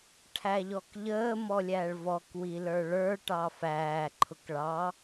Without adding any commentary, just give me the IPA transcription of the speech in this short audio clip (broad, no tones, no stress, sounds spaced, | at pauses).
ʈʰ æ ʎ ɔ k ʎ əː m ɔ lʲ æ ɭ v ɔ k w i l ə˞ ɭ ə˞ ʈ ɑ f æː ǃʰ ʊ k ɭ ɑ